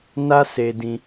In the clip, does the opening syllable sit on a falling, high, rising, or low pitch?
high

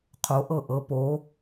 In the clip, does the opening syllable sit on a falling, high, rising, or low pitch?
rising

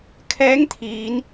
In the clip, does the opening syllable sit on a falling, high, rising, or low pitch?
rising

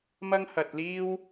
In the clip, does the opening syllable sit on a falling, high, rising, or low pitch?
high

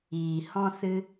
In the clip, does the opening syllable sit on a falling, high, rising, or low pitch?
low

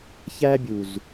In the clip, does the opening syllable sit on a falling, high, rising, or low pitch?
high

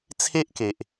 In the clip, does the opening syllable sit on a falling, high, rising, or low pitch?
high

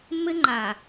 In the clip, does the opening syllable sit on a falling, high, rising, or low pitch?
high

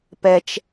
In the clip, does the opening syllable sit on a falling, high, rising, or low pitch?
high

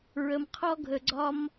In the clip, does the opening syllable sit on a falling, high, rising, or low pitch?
low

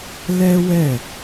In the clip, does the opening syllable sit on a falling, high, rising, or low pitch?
high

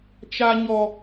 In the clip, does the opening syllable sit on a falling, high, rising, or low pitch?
low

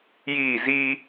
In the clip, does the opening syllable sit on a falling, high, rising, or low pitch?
falling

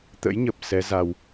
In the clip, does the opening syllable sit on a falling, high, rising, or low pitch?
rising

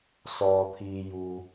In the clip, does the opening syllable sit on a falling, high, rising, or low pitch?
low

